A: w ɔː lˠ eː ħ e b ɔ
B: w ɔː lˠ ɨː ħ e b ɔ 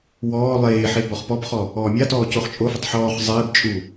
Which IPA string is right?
A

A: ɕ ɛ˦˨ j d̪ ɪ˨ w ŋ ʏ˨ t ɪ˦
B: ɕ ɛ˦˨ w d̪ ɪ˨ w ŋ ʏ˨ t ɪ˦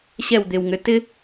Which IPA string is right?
B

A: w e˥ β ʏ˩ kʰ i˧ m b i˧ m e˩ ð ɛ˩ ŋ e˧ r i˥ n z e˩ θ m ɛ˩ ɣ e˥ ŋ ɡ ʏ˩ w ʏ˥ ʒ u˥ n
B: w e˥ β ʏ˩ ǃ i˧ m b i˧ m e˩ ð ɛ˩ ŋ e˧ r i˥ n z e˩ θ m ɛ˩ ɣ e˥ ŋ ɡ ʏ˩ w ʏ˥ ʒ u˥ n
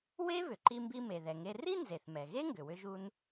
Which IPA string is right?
B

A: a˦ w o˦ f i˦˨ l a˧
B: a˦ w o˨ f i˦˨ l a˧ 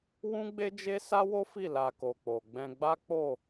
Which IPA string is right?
A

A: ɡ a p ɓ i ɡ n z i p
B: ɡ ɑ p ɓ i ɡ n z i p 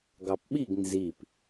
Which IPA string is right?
B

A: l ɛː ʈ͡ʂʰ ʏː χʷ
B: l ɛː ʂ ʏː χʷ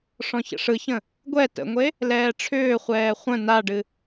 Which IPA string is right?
A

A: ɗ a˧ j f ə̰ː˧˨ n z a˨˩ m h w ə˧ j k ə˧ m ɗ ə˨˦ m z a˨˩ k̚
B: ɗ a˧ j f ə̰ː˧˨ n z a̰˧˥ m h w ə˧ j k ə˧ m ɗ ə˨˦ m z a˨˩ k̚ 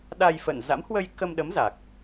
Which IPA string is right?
B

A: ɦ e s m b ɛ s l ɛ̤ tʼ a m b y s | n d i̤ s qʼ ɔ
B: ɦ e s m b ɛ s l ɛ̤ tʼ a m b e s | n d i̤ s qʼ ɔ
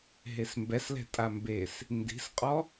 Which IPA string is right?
B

